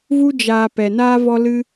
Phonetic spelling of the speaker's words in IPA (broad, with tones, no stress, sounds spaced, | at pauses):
v u˧ d͡ʒ aː˨ p ɛ˨ n aː˦ v ɔ˦ l ɨ˧